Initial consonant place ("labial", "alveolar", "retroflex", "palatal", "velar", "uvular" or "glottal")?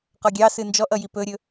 uvular